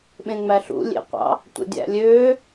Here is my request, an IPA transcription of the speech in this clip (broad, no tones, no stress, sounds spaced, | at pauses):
ɓ ẽ ŋ͡m æ ɬ ṵ lʲ ḛ qʷ ɑ̰ | tʷ ḛ dʲ æ̰ lʲ øː